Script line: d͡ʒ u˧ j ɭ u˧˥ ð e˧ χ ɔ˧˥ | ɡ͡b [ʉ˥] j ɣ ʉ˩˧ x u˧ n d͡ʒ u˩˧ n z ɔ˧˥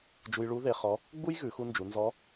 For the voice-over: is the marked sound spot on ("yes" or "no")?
no